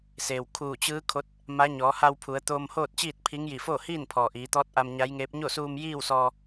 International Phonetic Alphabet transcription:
s eː˩ w kʰ uː˧˩ t͡ɕ ɯː˧˥ kʰ o˧˥ t̚ | m a˧˥ ɲ ɔː˩˧ h a˧ w pʰ u˩˧ ə̯ t̪ oː˧ m h oː˥˨ t̚ t͡ɕ iː˥˨ t̚ pʰ i˧˥ ŋ j i˧˩ f oː˥˨ h iː˥˨ n pʰ ɔː˩ ʔ iː˩˧ t̪ ɔː˧˥ t̚ ʔ a˧ m ɲ a˧˥ j ŋ eː˧˥ p̚ ɲ o˥˨ s uː˧ m j iː˥˨ w s ɔː˧

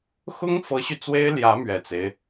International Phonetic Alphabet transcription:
x ʊ˥ ŋ f ɤ˧˥ ɕ y˧ t͡s w e˥ ɪ̯ l j ä˧˥ m ɥ ɛ˨˩ t͡s e˦ ɪ̯

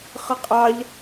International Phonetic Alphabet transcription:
χ ə qʼ ɑ ʎ

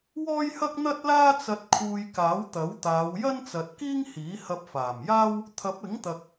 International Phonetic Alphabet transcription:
w ɔː˥ j h ɐ˥ k̚ n̪ ɐ˥ t̚ l aː˥ t͡s ɐ˧ t̚ kʰ uː˧ j k aː˨˥ w t̪ ɐ˨˥ w t̪ aː˨˧ w j ɐ˥ n t͡s ɐ˨ t̚ k iː˥ ŋ h iː˨˥ h ɐ˧ p̚ f aː˨˩ m j aː˥ w | t̪ʰ ɐ˨˥ p̚ ɪ˨˥ ŋ t̪ ɐ˨ k̚

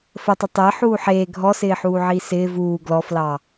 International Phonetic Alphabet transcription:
f ə tˤ u tˤ ɪː ħ uː ħ eː ɡʱ ɔ s ɪː ħ uː ʕ iː s ɪː v uː ɡ l ɔ f l ɑ

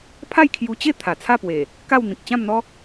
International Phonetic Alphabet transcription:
pʰ a˥˧ j kʰ j u˧ t͡ɕ e˥˧ t̪ʰ a˨˩ t͡sʰ a˥˧ p w e˨˩ | k a˥˧ w n̪ ĩ˨ k̚ t͡ɕ ã˥˧ m n̪ ɔ˦

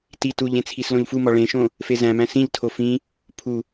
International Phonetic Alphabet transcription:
t i t u ʎ ẽ t͡sʰ i s l õ ʎ f u m ɒ ɭ ẽ ʃ õ | f e z æ̃ m æ̃ s ĩ ʎ tʰ o f ĩ | pʰ u

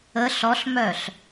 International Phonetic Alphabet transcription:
ə ɬ ɔ ɬ m œ ɬ

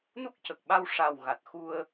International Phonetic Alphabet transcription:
n u˦˥ k̚ c ə˨˩ k̚ ɓ a˧ w ʂ a˨˩ w ɣ a˨˩ t̚ x u˧ ə̯

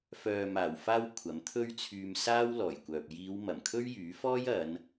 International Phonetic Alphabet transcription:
f œː˨ m aː˨˩ w f aː˧ w kʷʰ ɐ˨˥ m t̪ʰ ɵ˥ ɥ t͡sʰ yː˧ m s aː˥ w l ɔː˨˩ j kʷ œː˨ p̚ j iː˨˧ w m ɐ˨˩ m kʰ ɵ˥ ɥ j yː˨˥ f ɔː˥ j ɐ˨˧ n

